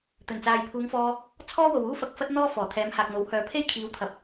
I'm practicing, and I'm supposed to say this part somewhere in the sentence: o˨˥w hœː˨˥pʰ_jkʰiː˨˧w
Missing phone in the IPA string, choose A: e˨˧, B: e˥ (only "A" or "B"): B